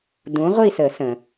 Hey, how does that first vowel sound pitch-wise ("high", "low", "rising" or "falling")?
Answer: rising